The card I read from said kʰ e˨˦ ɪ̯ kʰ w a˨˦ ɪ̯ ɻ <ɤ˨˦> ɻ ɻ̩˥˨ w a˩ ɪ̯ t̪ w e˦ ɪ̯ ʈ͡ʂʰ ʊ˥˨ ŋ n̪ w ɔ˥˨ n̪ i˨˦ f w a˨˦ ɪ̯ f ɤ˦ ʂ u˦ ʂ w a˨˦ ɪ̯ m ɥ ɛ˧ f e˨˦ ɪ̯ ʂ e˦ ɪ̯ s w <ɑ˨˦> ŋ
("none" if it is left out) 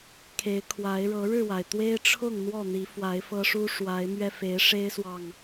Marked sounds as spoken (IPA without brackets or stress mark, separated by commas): ɤ˨˦, ɑ˨